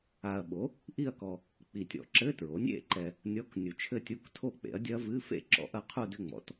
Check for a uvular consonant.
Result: present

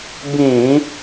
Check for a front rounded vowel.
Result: absent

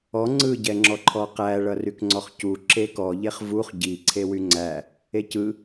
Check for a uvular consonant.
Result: present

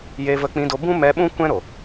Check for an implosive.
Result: present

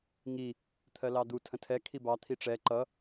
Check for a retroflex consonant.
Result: present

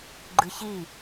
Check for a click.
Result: present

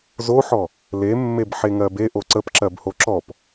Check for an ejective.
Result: absent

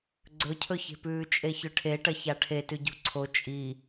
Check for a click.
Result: present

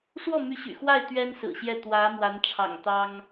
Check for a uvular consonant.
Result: absent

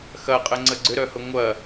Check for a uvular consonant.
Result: present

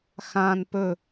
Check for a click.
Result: absent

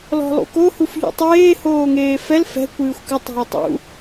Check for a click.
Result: absent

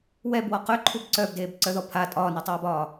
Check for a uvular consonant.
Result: present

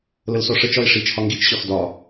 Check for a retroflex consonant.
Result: present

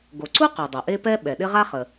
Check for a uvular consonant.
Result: present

